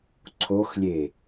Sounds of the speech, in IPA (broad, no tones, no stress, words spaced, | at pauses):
ǀʰoxlʲe